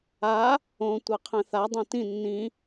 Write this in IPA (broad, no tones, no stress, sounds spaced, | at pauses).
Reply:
a | õ tʷ ɐ qʰ ɛ̃ θ a dˤ õ t ĩ nː ĩ